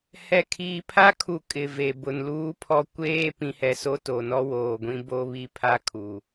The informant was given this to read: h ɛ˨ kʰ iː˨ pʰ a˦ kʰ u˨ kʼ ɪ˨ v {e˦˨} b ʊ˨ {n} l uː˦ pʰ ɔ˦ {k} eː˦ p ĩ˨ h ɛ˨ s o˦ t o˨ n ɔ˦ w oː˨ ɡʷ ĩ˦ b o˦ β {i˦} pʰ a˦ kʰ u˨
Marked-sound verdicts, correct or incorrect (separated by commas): incorrect, correct, incorrect, correct